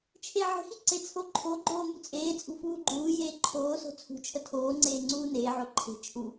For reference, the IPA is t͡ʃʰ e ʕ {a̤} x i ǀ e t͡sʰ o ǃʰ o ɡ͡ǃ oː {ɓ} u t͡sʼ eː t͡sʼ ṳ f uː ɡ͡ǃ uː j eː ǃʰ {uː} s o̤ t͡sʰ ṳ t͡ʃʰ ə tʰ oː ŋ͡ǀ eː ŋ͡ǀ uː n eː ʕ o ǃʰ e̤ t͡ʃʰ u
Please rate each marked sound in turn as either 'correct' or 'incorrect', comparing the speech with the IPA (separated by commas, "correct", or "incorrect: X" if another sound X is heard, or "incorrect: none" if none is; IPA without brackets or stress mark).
incorrect: ə̤, incorrect: m, incorrect: oː